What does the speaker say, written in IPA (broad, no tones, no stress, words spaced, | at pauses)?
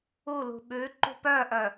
u lṳɓʉ ǃṳpœʔœ